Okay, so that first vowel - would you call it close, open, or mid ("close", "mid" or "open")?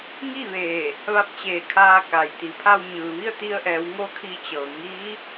close